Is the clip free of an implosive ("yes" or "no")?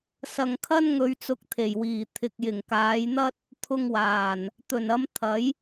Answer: yes